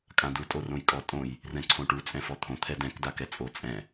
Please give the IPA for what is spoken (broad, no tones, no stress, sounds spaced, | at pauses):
kʼ ã d u tʼ o r õ j kʼ ɔ tʼ õ j | r ɛ̃ ǀʰ õ ʈ u t͡sʼ ɛ̃ f ɔ t̪ʰ õ t̪ʰ ɛ d ɛ̃ k d a k ɛ t͡sʼ o t͡sʼ ɛ̃